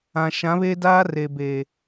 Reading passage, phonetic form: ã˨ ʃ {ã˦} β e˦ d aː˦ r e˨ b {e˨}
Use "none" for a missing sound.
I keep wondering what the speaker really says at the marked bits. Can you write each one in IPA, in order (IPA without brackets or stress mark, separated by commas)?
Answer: ã˨˦, eː˨